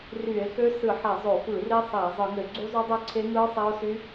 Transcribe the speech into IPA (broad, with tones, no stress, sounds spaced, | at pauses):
r y˧˩˧ e̯ x ø˦˥ s ɯ˧˩˧ ħ æ˧˩˧ zˤ o˧˩˧ f ɯ˧˩˧ r i˦˥ sˤ æ˧˩˧ zˤ ɯ˧˩˧ ŋ ø˧˩˧ ɡ͡ǀ u˦˥ zˤ u˦˥ dˤ ø˦˥ ǀʰ e˦˥ ŋ ɯ˦˥ sˤ æ˦˥ o̯ s y˦˥